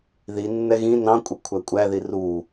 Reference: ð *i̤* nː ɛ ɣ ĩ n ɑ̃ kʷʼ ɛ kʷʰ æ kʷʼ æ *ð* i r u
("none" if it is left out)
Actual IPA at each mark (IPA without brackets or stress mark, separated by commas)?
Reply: i, ð